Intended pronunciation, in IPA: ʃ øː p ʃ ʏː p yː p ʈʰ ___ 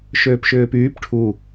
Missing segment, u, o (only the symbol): u